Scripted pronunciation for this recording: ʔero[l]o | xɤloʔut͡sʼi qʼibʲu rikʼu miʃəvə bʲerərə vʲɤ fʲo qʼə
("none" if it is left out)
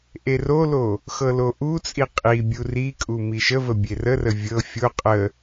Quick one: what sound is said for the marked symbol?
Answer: l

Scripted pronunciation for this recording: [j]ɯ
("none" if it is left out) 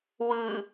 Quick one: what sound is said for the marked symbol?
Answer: w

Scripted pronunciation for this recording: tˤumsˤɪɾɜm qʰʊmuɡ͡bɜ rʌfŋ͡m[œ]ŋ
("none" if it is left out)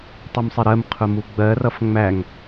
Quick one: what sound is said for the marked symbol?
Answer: æ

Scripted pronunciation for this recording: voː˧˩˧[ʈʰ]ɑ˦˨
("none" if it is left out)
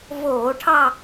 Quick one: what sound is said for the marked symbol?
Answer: ʈʰ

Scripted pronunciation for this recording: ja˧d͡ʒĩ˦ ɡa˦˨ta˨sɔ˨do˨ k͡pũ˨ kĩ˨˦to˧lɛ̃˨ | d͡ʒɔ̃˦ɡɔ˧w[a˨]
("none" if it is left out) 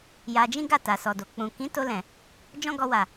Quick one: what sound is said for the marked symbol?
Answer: a˨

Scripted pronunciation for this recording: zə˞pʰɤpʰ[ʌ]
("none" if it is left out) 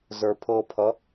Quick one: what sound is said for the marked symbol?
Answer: ʌ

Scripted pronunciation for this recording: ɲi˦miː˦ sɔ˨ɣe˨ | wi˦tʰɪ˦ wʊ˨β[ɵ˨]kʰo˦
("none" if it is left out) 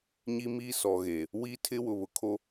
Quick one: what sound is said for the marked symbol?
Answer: ʊ˨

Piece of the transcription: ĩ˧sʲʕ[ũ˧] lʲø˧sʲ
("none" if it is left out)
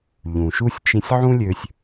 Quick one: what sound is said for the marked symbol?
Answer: ũ˥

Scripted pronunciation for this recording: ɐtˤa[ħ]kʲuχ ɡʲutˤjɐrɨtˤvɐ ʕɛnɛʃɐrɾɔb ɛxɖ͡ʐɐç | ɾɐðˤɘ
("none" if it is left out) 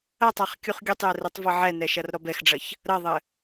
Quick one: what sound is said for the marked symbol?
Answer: χ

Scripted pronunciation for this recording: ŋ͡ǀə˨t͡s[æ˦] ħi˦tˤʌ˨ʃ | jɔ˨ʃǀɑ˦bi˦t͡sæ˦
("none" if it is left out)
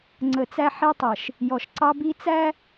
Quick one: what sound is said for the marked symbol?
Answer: æ˦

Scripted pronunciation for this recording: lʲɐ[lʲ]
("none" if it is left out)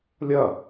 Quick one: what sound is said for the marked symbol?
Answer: none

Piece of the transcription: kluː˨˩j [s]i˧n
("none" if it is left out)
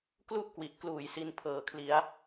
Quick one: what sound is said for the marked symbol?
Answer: s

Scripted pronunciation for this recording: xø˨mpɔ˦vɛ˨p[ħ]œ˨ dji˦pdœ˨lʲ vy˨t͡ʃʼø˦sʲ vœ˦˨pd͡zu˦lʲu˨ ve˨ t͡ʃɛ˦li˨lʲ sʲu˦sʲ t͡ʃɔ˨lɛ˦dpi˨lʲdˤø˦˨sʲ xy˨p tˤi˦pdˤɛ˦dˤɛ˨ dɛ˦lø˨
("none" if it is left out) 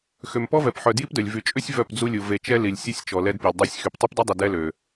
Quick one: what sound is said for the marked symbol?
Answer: ħ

